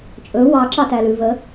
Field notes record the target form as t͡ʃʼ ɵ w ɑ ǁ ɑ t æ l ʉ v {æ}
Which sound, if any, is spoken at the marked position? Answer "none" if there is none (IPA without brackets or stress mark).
ə